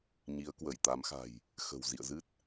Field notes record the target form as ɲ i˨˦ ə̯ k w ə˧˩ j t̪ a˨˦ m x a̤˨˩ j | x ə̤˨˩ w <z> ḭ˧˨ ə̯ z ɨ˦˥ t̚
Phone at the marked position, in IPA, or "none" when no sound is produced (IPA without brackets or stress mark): z